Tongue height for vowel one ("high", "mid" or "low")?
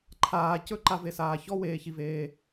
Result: low